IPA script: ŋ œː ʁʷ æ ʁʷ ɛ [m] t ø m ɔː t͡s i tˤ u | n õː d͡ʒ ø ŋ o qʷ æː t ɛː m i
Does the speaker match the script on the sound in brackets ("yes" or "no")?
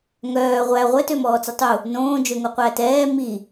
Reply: no